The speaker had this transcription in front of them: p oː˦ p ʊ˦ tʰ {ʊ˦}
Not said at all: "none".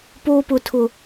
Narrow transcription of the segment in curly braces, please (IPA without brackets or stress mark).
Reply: ʊ˦